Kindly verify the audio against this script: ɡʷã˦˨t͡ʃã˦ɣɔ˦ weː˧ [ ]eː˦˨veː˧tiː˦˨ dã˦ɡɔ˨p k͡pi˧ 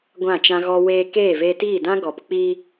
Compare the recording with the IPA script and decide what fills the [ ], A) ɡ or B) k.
B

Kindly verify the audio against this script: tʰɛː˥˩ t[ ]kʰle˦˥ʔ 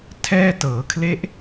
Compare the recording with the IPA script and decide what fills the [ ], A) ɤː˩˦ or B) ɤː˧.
A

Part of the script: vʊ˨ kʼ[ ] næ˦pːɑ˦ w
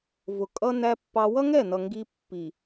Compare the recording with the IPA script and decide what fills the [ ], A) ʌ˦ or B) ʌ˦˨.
A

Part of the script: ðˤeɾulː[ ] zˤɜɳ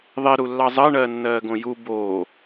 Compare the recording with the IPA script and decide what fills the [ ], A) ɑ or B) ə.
A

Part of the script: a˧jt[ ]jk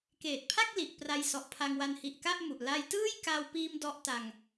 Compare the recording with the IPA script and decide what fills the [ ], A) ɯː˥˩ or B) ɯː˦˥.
A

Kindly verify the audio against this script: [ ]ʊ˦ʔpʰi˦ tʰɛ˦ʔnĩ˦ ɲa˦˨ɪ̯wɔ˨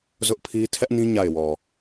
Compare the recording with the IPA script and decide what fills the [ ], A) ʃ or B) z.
B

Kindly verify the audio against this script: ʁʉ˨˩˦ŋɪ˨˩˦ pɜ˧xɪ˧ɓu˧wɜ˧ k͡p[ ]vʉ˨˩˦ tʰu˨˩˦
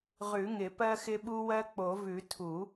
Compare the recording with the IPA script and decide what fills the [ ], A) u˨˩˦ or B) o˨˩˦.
B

